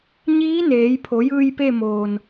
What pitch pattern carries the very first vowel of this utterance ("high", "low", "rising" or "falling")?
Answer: rising